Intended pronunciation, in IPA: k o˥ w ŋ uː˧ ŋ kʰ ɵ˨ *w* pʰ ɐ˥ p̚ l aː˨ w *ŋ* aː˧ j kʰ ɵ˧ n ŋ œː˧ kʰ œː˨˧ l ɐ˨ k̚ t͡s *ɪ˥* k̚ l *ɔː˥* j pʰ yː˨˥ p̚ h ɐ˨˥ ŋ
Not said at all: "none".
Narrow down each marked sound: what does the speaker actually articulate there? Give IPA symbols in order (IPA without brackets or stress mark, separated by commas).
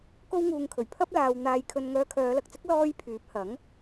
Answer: ɥ, n̪, ɪ˥, ɔː˥